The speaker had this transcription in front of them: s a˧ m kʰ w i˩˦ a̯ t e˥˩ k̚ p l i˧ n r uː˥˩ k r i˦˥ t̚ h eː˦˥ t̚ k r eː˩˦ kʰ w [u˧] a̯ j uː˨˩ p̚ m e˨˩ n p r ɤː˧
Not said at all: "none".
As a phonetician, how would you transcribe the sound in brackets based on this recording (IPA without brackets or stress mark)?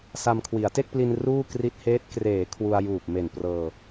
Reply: u˧